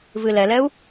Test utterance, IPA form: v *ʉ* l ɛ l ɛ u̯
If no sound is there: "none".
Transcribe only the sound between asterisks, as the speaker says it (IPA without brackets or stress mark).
ɨ